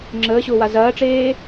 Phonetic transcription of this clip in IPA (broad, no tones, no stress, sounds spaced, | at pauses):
ŋ͡ǁ əː ɕ ʊː w a z ɐː ʈ͡ʂ eː